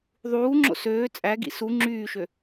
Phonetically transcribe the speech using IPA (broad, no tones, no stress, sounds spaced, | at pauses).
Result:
ðˤ uː ŋ͡ǁ o̰ s øː t͡sʼ æ ɡ ḭ s u ŋ͡ǁ yː ʃ ø